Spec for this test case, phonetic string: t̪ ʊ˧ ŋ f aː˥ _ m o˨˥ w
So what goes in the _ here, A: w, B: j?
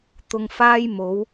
B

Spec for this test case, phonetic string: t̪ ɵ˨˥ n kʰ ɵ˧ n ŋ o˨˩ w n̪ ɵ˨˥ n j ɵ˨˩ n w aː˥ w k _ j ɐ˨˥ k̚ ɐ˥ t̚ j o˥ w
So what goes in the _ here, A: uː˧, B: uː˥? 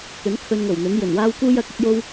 B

